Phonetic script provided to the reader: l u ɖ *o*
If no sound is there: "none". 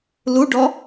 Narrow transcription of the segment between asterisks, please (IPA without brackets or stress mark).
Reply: ɔ